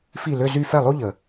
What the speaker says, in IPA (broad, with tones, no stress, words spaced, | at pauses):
fi˥˩lø˥˧zy˥˧ fɛ˥˩lˠo˥ ʎə˩